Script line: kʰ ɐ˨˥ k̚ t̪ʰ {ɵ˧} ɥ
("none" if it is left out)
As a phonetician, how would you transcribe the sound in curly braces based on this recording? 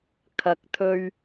ɵ˧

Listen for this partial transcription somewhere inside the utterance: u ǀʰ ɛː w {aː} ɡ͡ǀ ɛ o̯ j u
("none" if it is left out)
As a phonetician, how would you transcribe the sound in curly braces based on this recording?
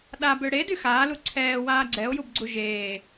aː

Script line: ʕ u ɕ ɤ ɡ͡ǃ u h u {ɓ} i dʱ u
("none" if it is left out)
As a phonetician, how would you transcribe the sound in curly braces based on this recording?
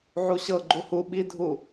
ɓ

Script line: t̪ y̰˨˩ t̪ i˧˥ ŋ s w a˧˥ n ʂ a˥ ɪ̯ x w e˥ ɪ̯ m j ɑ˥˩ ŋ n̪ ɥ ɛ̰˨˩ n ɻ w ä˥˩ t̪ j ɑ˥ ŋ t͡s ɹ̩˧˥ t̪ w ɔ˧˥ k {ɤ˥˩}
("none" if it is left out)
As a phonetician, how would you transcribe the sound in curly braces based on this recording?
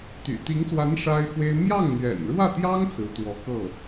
ɤ˥˩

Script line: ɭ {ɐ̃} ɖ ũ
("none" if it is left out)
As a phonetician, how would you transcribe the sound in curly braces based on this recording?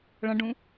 ɐ̃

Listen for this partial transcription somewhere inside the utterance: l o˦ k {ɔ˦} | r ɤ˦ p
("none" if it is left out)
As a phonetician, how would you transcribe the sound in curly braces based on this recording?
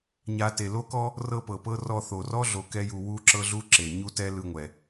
ɔ˦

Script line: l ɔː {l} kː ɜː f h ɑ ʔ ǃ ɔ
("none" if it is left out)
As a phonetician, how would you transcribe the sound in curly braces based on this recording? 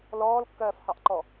l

